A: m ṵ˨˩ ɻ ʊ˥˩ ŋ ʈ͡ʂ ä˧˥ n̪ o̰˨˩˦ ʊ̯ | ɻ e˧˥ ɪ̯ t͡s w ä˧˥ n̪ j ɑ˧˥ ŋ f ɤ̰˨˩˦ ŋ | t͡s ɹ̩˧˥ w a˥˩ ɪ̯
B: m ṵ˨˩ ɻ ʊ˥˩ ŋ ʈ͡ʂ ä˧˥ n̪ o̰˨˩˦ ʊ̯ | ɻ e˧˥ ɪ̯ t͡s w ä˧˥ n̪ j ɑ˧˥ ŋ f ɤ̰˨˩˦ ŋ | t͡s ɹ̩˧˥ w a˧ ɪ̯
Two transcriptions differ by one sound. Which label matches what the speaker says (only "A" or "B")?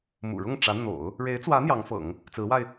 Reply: B